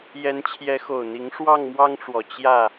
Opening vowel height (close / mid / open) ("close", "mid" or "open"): mid